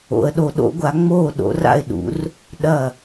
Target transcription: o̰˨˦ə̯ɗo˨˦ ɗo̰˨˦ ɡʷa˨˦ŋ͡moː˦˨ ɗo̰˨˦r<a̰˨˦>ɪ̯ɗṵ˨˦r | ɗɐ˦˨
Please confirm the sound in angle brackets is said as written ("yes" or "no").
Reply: no